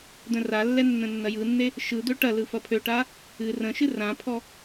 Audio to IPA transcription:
d̪ə̃ralːɛ nːə̃nːɐjɯnːe | ʃɯd̪ø ʈɐlɯ fɐpʰøʈa | ɨ rə̃ʃɨ rãpʰɔ

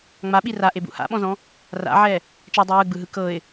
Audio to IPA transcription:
ŋ͡maɓi raʔebṵ ha̰ɓɔ̃zɔ̃ | ra̰ʕɛ | t͡ʃɛdˤu jɯɡ͡bɯɦɯ kɤɪ̯

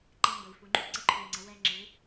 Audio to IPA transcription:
ǃɛ˧mbə˩i̯ fu˩ŋ͡ǃu˧˥ ǀə˧ǃʰu˩i̯ŋ͡ǀə˩˧ wɛ˧ŋ͡ǁɯ˩˧

